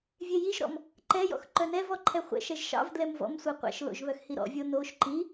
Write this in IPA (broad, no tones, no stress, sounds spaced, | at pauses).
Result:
vʲ e j i ʒ ɾ ɔ̰ m | ǃ ɛ j ɔ̰ x ǃ œ n ɛ v ɔ ǃʰ ɛ χʷ ɛ̰ ʃ ɛ ʒ ʃ ɑ̰ v d l ɛ m v ɔ̰ m sʷ ɛ qʷ ɛ̰ ʃ l o̰ ʒ β œ x h i ɾ ɔ̰ vʲ o n o ʃ ǃ i